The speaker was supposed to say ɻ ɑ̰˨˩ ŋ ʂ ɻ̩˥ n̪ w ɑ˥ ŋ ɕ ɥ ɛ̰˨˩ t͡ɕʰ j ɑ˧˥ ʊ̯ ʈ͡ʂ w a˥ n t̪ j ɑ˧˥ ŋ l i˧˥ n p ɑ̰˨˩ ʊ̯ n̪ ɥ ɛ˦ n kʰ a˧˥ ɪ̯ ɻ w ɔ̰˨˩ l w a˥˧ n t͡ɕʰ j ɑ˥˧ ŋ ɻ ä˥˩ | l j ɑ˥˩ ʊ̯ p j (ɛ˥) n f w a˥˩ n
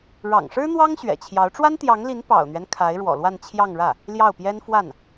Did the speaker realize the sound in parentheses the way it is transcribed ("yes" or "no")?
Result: yes